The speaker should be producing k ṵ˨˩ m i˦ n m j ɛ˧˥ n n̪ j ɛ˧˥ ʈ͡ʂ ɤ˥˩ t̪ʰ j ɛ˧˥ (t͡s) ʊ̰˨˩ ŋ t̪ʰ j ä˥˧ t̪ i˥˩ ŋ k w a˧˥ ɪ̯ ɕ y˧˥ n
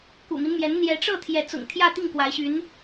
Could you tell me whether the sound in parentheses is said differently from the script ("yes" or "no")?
no